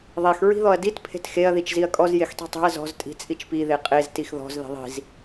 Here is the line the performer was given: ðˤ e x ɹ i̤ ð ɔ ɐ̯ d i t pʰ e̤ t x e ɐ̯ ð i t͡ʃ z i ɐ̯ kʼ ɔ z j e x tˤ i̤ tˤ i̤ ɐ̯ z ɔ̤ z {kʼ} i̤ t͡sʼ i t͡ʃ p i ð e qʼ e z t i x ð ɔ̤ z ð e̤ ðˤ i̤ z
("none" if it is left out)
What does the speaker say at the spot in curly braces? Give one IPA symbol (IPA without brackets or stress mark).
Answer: tʼ